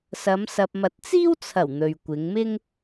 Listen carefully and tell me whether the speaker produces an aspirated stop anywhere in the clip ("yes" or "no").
yes